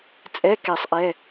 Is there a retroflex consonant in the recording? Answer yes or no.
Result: no